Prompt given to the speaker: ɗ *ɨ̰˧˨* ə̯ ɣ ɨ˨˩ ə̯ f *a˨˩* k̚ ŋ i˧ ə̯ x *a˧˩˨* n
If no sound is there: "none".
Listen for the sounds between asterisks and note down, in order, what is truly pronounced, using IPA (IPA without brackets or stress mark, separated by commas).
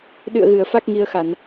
ɨ̰˧˨, a˦˥, a˧˩˨